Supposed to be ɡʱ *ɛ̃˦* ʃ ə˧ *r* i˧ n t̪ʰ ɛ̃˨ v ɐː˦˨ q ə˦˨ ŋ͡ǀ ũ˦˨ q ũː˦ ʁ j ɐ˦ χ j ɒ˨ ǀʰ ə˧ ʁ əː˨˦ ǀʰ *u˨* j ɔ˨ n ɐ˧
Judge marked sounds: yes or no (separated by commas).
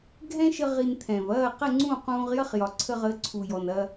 yes, no, yes